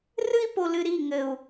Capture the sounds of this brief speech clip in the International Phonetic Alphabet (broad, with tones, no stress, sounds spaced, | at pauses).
r ɨ˦ i̯ p o˨ l ɨ˨ ɾ i˦˨ ŋ ɘ˨ u̯